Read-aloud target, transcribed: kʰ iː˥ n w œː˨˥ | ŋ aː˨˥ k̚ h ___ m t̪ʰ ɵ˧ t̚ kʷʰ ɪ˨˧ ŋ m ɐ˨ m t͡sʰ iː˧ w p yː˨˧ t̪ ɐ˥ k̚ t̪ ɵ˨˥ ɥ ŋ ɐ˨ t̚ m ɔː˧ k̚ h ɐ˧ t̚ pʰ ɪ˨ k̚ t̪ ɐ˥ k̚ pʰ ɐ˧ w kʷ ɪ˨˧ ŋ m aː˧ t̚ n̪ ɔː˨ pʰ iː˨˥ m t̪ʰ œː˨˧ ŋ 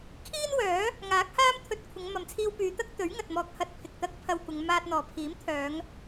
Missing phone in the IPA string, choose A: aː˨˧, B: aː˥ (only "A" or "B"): B